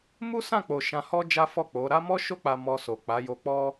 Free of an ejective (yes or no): yes